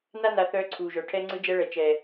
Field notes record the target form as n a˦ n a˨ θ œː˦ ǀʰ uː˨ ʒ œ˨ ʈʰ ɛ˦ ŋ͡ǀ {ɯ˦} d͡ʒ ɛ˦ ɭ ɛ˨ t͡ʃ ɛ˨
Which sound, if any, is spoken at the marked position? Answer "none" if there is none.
ɯ˦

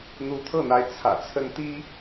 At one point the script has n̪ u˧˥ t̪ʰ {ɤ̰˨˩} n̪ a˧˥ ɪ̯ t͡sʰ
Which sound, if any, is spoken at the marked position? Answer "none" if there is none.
ɤ˥˩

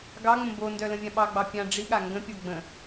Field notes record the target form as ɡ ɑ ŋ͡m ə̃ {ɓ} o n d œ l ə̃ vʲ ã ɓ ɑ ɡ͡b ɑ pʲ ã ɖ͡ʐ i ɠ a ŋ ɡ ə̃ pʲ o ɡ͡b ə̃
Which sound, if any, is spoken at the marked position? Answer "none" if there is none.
b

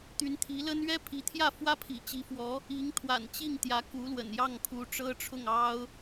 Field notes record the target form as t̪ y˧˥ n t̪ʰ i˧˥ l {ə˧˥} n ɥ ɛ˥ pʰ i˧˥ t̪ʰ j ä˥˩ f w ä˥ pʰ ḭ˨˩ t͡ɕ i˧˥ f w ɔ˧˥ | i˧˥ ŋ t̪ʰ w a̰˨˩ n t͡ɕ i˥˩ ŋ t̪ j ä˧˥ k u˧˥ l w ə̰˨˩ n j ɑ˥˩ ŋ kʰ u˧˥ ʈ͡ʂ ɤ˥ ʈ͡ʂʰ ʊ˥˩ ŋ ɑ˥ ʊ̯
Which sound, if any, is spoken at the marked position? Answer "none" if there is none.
ə˥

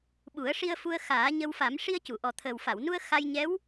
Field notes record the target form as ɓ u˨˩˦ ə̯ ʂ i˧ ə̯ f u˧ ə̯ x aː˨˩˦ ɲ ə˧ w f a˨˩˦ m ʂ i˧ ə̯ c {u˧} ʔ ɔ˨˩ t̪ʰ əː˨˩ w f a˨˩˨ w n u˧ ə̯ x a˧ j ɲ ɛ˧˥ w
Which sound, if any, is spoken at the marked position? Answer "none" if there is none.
u˨˩˨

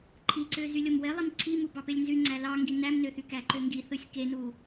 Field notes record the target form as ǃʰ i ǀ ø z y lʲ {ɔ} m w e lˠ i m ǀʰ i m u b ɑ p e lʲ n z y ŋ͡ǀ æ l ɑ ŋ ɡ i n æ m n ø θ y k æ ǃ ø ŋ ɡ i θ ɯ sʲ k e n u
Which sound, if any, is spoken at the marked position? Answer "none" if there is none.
o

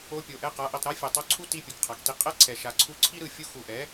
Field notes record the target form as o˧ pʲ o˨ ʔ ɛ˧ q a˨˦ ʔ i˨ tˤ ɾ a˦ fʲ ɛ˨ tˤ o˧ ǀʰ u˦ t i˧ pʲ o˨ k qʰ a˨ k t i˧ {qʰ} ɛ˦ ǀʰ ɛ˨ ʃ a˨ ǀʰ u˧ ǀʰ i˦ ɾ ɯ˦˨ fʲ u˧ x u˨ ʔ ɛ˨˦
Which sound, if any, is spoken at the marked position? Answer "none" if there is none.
qʼ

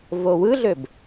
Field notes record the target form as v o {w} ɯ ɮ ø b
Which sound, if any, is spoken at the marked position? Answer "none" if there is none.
w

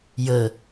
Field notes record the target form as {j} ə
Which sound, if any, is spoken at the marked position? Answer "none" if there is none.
j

